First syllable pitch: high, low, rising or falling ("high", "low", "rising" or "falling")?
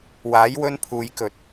rising